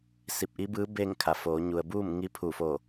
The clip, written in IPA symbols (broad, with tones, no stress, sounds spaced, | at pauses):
s i˧˩ p̚ ʔ i˧˥ b ɯː˧˥ b eː˥˨ ŋ kʰ a˩˧ f oː˩˧ ɲ u˩ ə̯ b uː˥˨ m ŋ i˧˥ pʰ uː˧˩ f o˧˩